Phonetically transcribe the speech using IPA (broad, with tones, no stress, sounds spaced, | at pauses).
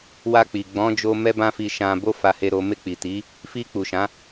w a˧ k͡p i˨ ɡ͡b ɔ̃˨˦ d͡ʒ o˧ m ɛ˦ b ã˦ f i˧ ʃ ã˧ b o˦ f a˧ h e˧ ɾ o˧ m e˧ k͡p i˨ t i˨˦ | f i˧ k͡p u˨ ʃ ã˨˦